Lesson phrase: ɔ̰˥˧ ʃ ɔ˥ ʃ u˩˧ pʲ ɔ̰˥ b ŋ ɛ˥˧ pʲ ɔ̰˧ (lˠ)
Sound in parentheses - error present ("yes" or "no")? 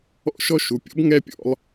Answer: no